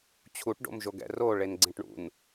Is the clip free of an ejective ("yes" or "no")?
yes